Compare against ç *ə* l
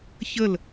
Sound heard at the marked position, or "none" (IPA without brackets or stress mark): ə